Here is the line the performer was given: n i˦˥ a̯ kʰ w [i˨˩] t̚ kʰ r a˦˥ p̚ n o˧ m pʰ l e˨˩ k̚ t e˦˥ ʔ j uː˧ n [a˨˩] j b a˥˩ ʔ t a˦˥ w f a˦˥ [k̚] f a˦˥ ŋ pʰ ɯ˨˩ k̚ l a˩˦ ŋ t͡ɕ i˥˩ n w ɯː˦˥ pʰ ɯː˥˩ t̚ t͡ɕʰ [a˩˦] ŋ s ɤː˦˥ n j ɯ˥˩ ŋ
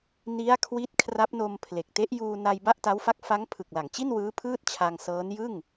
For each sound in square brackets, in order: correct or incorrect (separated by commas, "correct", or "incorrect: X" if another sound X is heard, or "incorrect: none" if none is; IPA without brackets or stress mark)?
incorrect: i˦˥, incorrect: a˧, correct, incorrect: a˧